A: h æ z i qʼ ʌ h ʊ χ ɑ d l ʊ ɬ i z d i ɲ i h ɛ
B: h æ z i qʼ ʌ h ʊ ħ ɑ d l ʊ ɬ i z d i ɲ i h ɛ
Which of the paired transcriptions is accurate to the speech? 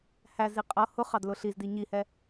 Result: A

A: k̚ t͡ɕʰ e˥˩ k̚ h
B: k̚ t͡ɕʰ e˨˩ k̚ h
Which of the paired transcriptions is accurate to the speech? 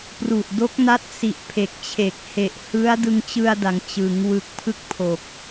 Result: B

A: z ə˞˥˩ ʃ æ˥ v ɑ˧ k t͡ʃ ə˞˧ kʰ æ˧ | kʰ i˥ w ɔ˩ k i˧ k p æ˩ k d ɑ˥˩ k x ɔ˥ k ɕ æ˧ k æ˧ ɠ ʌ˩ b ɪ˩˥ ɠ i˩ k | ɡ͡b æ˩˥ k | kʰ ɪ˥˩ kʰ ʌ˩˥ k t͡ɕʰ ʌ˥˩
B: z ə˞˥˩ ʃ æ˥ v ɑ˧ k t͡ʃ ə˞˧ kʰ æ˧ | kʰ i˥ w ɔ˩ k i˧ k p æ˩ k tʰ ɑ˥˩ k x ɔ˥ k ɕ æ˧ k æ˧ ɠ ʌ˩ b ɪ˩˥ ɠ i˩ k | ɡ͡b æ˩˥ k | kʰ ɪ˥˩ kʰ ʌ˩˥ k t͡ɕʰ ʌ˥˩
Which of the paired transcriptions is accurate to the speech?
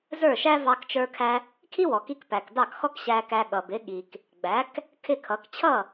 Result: A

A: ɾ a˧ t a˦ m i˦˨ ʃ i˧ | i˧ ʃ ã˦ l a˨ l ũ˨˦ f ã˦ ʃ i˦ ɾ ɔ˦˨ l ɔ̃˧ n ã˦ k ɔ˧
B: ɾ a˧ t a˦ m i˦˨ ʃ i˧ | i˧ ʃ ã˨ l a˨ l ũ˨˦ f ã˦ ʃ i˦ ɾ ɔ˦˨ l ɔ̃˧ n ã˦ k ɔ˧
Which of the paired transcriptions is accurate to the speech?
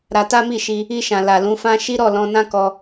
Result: B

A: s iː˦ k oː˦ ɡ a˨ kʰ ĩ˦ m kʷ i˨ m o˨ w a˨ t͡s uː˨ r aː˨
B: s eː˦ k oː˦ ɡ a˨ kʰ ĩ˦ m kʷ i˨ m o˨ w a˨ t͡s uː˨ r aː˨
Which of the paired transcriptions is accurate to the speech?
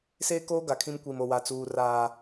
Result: B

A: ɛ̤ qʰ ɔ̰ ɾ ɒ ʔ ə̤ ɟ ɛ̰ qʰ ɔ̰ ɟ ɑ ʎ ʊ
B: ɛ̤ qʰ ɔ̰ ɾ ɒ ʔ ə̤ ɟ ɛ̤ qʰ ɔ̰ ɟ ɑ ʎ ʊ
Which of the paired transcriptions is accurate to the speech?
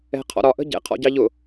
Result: A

